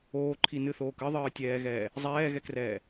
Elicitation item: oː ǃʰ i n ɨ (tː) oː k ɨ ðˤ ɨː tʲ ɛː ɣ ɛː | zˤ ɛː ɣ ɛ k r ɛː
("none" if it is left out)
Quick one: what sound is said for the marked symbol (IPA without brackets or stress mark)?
θ